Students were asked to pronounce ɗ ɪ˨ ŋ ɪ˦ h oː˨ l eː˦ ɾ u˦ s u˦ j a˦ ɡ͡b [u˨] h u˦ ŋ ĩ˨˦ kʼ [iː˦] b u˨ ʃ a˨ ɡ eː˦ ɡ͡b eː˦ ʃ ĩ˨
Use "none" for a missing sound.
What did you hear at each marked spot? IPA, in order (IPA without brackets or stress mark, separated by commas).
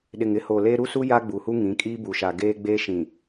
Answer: u˨, iː˦